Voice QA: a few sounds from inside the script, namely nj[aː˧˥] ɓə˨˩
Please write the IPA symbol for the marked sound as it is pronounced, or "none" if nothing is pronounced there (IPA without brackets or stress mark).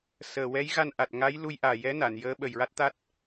əː˧˥